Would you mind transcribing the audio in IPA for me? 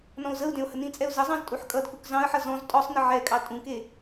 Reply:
n ɔ̃ ʊ̯ z ə ʊ̯ d ẽ ʊ̯ h ə n ĩ t͡sʼ ɛ ʊ̯ z ə zˤ ɑ̃ z tʼ u ħ kʼ ʌ d k u k z ɑ̃ ə̯ ħ ʌ z ɔ̃ z tʼ ɔ sˤ n ə ʕ ɛ kʼ ɑ tʼ ũ k e

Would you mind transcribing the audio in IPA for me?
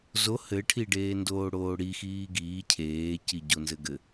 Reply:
z o h ɘ ʈʰ i ɖ eː n d oː ɽ oː ɽ i x iː ɡ iː cʰ eː c i ɟ o n z ɘ ɡ ɘ

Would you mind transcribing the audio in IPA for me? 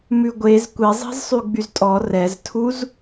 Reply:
m ʉ ɡʷ e z kʷ i zˤ i̤ z sˤ y ɡ͡b y z tʼ ɔ r ɛ z tʰ u z

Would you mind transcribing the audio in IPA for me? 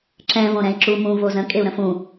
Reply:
ǁ ɛ̃ v õ ɾ ɛ̃ i̯ ǁ u m ũ v o z ə̃ kʼ e u̯ ɾ ə̃ f ũ

